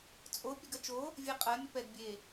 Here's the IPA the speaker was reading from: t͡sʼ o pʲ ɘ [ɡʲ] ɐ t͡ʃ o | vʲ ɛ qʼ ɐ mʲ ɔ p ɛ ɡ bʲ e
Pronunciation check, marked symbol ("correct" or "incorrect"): incorrect